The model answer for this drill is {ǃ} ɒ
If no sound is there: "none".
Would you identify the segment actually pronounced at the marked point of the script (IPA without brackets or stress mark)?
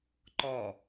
ǃ